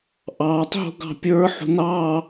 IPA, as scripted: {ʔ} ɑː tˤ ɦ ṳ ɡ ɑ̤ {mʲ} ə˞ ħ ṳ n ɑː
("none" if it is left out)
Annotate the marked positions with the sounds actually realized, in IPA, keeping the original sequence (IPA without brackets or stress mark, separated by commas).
ʔ, pʲ